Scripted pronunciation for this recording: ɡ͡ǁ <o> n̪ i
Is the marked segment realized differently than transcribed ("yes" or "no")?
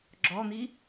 yes